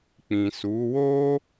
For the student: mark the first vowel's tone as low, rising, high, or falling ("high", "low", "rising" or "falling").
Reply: low